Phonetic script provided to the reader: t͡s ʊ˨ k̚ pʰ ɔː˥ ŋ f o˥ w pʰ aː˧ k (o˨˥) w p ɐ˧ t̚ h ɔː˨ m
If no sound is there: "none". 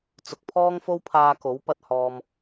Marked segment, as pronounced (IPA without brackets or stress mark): o˨˥